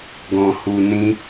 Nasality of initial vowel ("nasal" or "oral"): nasal